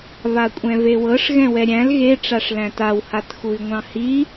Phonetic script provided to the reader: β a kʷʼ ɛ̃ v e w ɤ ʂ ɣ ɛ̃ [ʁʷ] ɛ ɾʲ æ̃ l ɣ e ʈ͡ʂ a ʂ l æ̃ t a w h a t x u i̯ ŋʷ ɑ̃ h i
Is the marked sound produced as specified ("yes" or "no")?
no